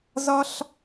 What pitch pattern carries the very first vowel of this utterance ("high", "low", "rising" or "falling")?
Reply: high